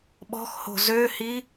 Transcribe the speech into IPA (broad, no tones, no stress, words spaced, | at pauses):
ɓɔ̤xho̤ zøhi